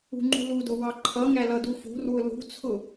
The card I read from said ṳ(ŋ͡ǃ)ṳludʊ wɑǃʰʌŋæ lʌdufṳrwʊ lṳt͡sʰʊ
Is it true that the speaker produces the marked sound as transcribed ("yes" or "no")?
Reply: yes